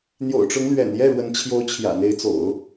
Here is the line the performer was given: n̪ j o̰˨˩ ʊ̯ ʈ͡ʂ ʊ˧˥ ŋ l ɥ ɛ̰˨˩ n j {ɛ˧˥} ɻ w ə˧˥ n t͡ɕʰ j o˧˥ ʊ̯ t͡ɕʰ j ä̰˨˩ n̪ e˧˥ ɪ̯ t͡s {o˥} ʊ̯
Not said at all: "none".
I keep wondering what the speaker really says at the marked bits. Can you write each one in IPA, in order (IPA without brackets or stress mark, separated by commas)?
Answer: ɛ˥˩, o̰˨˩˦